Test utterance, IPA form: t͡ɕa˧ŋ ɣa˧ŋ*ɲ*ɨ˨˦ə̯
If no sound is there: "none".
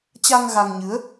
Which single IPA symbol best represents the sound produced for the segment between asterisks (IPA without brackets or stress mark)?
ɲ